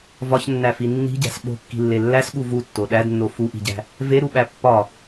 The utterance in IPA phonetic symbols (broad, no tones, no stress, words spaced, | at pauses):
vɒçnːæfi nːi̤ɟæ̤s ɓo̤kːi̤lːe lːæsɠu vutːo ɗædnːo fuʔi̤ɟæ̤ | veɾuɓæ pːɒ